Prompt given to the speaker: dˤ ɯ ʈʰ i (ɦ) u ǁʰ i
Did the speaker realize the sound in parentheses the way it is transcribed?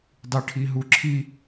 yes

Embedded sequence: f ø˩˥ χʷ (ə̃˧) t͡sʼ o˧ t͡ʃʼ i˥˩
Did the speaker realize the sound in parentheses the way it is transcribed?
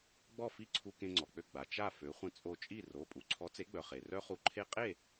yes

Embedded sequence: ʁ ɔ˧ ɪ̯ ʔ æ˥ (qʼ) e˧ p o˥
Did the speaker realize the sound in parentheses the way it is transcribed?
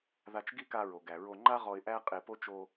yes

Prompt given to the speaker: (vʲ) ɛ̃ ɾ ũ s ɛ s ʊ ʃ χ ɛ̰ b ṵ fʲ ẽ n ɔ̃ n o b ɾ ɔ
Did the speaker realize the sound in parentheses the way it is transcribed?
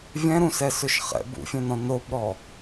yes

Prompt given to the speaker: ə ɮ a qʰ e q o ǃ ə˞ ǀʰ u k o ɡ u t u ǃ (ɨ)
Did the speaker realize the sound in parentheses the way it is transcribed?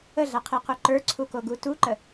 no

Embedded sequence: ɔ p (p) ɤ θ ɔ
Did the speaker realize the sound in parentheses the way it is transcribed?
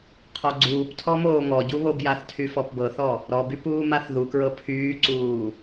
no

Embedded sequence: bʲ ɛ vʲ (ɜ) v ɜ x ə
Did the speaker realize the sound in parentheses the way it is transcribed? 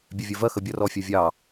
yes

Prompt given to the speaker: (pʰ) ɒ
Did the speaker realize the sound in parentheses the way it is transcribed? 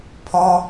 yes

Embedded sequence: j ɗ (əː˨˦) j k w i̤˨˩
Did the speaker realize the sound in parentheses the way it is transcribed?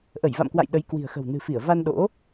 no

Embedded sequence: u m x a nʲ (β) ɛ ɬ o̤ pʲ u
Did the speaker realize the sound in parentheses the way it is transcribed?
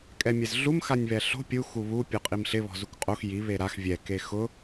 yes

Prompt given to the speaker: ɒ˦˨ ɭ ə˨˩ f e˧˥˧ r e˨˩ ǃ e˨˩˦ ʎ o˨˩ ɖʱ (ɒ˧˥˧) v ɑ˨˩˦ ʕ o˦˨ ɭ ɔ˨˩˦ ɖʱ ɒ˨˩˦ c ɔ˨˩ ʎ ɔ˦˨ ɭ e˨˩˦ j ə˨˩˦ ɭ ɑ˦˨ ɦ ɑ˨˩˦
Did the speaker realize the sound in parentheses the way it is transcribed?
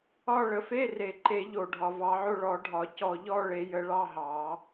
no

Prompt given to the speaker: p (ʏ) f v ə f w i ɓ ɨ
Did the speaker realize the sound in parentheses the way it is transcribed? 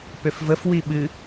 yes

